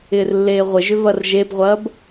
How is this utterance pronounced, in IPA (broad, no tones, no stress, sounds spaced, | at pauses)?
ɪː r lː eː ʁʷ ɪ ʒ ʏ v ɐ r ʒ e b ʁʷ ɐː b